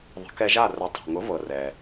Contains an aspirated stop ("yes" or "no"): no